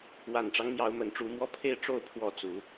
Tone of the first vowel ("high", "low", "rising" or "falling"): low